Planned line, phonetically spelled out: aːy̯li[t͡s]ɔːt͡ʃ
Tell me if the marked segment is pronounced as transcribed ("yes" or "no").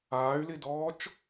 no